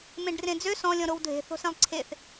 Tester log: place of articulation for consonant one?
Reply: labial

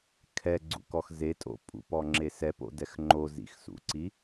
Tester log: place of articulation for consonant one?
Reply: velar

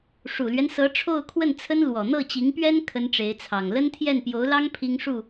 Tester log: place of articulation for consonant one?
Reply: retroflex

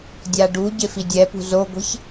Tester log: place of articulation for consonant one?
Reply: alveolar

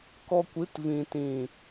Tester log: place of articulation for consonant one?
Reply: velar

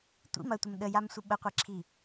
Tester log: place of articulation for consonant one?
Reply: alveolar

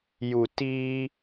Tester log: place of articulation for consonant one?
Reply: palatal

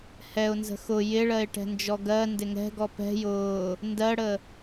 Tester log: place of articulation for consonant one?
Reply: glottal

